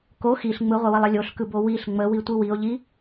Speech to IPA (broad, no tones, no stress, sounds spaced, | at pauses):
k o x i ɬ ŋ͡m ɯ ʁʷ ə w ə lˠ ə lʲ o ɬ k ɯ b o w i ɬ ŋ͡m ə w i tʷ ɯ w i o̯ ʎ i